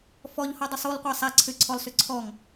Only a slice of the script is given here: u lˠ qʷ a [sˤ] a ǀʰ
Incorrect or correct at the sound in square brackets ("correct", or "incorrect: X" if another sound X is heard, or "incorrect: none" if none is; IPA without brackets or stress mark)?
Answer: correct